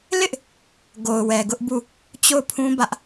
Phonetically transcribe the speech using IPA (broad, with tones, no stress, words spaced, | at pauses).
lɪ˦ʔ | ɡo˨ʊ̯wɛ˨ɡʊ˦ʔbu˦˨ | t͡ɕo˦˨ʊ̯pʰũ˦bä˦ʔ